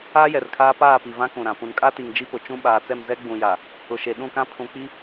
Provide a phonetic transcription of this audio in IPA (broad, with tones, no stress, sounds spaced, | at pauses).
aː˦ j ɛ˨ r kʰ aː˦ p aː˦˨ p i˨ v ã˦ k ũ˨ ɾ ã˨ p ũ˨ n kʼ a˦ t i˨ ŋ d͡ʒ i˦ p ʊ˨ t͡ʃ ũ˦ ɓ aː˨ t͡s ɛ˦˨ m z ɛ˦ ɡ͡b ũ˨ j a˨ | ʊ˨ ʃ e˨ ɗ ũ˦˨ k ã˦ pʰ ũ˨ k͡p i˦